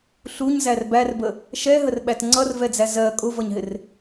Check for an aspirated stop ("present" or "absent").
absent